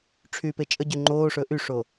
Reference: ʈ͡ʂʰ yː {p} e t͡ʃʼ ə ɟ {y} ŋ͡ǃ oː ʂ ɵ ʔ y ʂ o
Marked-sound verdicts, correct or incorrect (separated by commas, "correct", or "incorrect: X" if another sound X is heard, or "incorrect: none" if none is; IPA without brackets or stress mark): correct, correct